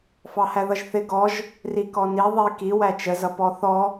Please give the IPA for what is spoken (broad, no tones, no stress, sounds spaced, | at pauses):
f ɑ h æ ð ʌ ʒ θ ɪ ɡ ɔ ʒ | r i k ɔ n i ðˤ i k i w æ t͡ʃ ə z ʌ p ɔ θ ɔ